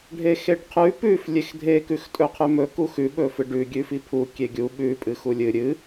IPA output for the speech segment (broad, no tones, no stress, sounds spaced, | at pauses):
ɖʱ e x e ɖ qʰ ʉ p ʉ f lʲ e x dʱ e k ʉ x tʼ ɵ qʰ ʉ m ɵ k u x ʉ ɓ ɵ f ɨ ɖ ʉ ɡʲ ʉ f i pʰ u kʲ e ɡʲ u ɓ ʉ pʼ ɨ x u lʲ ɨ ɾʲ ɨ